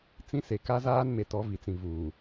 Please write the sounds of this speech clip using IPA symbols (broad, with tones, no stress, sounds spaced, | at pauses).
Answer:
t͡s ĩ˦ s e˨ k a˦ z aː˦ n m e˨ t ɔ˨˦ v i˨ t͡s ĩ˨ v uː˨